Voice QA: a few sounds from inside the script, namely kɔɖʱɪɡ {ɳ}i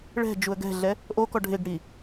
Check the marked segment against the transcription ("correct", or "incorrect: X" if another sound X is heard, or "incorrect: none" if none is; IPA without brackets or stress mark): incorrect: ɽ